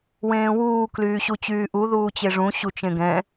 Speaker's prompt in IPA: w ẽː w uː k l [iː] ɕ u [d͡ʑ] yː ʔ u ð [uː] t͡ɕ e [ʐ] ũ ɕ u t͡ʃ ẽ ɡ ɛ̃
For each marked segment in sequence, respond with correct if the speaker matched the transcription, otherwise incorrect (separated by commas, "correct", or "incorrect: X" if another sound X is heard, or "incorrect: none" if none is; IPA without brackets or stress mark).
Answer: incorrect: yː, incorrect: t͡ɕ, correct, correct